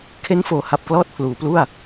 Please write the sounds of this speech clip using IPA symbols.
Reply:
kʰ e˦˥ n f oː˩˦ h a˨˩ p̚ k l ɔː˥˩ t̚ pʰ l uː˩˦ p l u˥˩ a̯

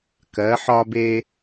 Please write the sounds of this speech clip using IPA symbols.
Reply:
k ɜ˩˧ ħ ɒ˧ b eː˧

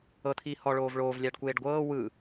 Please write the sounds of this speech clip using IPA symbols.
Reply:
ɤ t̪ʰ iː h ɔ ɭ oː v ɭ oː v lʲ aː ɖ kʷ eː ɖ ɡʷ ɤː w ɯ

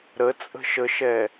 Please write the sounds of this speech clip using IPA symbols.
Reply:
ɾ ə t͡sʼ ə̤ ʃ ə ʃ ɛ

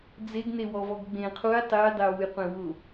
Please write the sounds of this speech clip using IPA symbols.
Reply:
d͡z e ɡ n e w ɔ v ɔ ɡ ɡ͡b ẽ qʰ u j tˤ e j dˤ e w u j qʷ ẽ w ʊ

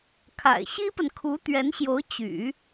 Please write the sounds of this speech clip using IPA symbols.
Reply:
kʰ a̰˨˩ ɪ̯ ɕ i˥ p ə˨ n kʰ u˧˥ t̪ ɥ ɛ˧˥ n ɕ j o˧˥ ʊ̯ t͡ɕ y̰˨˩˦

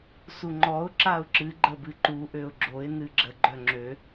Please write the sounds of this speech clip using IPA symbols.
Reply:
s u ŋ͡ǃ ɔ ʊ̯ ǁ a ʊ̯ ǁ ɨ ɡ͡ǃ ə b ɨ ǃ u ʔ ø ʊ̯ ɡ͡ǁ o ɪ̯ n ɨ ɡ͡ǁ ə ɡ͡ǃ œ ŋ͡ǁ ø

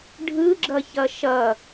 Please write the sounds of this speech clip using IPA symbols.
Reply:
ɖʱ ɯ ɡ͡ǁ ʌ ç ʌ ʃ ʌ

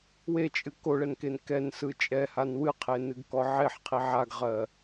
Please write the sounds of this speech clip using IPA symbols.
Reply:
w e t͡ʃʼ ɨ k o ɭ ɛ n k e n k ɛ n s ɯ t͡ʃʼ ɛ h a n w ɨ qʰ e n ɨ ɡ k ɔ ʕ e ħ qʰ i ʕ a ɡ ʁ ɜ

